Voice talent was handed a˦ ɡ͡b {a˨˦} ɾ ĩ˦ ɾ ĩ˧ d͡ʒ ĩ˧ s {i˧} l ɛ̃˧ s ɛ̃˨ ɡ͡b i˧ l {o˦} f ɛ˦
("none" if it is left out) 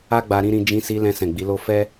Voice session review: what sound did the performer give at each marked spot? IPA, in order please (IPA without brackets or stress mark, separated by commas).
a˧, i˧, o˦